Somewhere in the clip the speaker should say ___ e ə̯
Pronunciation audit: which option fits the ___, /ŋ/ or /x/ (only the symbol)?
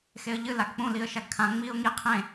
x